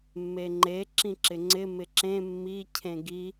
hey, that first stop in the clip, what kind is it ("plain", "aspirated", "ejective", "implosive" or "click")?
click